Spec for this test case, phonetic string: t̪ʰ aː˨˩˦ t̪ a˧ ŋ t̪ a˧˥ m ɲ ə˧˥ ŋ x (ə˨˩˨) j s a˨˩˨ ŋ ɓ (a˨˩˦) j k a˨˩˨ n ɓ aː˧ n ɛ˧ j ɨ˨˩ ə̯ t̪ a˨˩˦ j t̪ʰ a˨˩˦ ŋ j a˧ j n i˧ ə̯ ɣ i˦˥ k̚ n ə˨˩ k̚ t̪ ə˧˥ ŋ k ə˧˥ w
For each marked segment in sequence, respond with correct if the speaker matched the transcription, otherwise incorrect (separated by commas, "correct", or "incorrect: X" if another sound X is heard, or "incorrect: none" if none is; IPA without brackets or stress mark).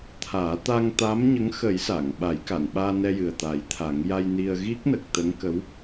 incorrect: ə˨˩˦, correct